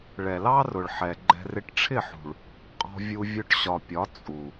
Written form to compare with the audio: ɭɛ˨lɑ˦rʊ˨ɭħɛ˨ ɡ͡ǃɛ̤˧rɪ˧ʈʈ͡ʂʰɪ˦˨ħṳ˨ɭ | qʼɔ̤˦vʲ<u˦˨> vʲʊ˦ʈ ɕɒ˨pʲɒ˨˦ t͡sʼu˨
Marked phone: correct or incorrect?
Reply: incorrect